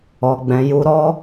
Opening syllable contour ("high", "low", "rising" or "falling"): low